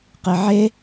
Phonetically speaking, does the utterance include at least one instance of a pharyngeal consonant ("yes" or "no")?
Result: yes